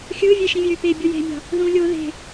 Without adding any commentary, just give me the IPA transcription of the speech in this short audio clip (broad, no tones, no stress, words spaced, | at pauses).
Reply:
xʲɯːvʲe ʃĩvʲøːpebʲu je̤mʲɑ̤ | ðũ lʲo ðe̤